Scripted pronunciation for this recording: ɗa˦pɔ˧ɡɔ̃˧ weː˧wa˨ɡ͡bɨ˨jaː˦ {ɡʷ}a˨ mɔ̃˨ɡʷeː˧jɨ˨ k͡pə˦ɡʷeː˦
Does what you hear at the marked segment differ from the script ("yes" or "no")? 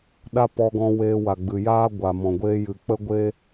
no